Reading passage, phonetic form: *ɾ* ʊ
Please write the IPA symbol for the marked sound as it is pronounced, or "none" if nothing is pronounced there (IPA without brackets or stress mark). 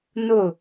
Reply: n